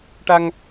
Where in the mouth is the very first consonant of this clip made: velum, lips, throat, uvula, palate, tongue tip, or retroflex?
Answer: retroflex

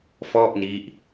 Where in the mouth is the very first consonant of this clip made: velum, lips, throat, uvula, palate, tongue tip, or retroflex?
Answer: lips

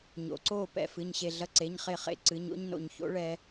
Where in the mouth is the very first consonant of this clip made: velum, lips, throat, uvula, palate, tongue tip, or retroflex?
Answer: palate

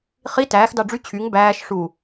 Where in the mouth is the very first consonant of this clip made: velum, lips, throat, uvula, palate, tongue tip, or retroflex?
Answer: uvula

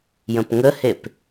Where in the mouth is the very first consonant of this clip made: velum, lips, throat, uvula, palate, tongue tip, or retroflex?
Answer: palate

